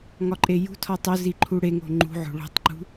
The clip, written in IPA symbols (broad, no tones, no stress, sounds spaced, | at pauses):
ŋ ɒ ǃʼ e j ṳ tʰ ɒ tˤ o z i ǃʰ u ɽ e ŋ o̤ ŋ͡ǃ ṳ ʕ o̤ ɭ o̤ tˤ ǃ ṳ